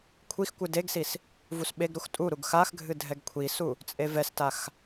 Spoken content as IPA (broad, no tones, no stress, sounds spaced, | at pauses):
kʷʰ i x kʷ ɨ d e ɡ s i s | v u s ɓ e ɡ ɾ u x tʼ u ɾ u ɡ x a x ɡʱ ɨ dʱ ɛ ɡ kʷʰ i s u | t͡sʼ e v ɛ s t a x